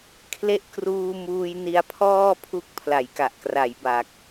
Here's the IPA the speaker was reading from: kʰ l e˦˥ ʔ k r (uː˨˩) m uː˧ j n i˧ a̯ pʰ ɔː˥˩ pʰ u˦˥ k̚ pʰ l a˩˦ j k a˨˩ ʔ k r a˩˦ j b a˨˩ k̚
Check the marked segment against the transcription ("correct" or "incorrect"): incorrect